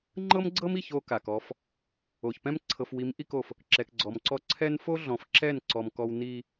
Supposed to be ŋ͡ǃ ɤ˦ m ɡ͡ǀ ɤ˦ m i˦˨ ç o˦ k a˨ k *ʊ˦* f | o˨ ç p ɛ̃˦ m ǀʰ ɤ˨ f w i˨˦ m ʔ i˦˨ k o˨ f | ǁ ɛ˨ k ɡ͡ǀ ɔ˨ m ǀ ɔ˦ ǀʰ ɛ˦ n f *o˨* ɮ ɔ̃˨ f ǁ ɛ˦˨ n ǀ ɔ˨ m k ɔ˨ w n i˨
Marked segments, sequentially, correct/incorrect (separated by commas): incorrect, incorrect